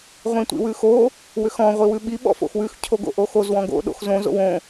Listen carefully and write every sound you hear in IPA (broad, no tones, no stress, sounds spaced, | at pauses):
ʁʷ ĩ tʷ ḭ w ʉ x o | w ʏ x ɔ̃ ʁʷ i w ʉ ɓ i ɓ ɔ̰ f o̰ x w ʉ x cʰ o ɡ o̰ ʔ o x o z w ɔ̃ ɡ o̰ ɗ o̰ x z õ z o̰ w õ